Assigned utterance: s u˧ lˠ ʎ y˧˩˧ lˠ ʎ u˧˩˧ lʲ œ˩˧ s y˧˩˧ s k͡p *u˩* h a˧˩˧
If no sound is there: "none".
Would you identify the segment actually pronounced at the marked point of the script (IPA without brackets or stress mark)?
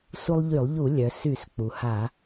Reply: u˩